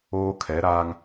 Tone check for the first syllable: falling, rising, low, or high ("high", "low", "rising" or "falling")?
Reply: high